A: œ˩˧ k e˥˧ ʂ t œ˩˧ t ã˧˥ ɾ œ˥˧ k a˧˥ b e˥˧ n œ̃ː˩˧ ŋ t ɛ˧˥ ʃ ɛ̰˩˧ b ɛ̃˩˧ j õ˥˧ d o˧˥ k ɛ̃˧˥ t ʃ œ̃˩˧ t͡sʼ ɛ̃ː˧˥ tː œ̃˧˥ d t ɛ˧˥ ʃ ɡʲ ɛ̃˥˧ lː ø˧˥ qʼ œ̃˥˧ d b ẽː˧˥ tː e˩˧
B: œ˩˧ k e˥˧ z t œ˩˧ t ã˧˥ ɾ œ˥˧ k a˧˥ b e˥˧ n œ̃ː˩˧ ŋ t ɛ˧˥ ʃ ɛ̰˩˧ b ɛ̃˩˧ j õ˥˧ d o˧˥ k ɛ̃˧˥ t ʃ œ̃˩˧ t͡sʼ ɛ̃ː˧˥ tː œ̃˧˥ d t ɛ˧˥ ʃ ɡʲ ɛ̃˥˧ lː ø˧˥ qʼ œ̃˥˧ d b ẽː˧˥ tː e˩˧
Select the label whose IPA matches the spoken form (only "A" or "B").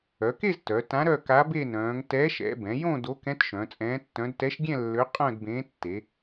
B